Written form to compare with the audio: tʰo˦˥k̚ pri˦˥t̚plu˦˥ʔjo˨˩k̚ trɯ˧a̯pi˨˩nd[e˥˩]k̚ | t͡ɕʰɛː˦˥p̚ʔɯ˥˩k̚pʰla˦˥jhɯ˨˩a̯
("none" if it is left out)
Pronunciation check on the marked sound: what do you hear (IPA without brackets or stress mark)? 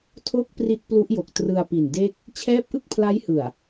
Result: e˥˩